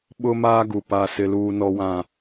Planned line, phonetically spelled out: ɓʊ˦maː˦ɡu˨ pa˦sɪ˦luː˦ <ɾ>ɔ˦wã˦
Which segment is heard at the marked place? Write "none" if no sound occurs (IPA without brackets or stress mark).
n